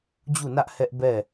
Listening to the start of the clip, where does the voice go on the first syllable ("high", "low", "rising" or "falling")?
falling